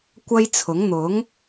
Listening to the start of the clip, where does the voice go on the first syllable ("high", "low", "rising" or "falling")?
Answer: high